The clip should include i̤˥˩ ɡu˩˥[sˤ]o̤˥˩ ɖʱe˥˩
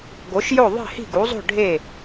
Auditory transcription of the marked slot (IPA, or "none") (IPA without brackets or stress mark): zˤ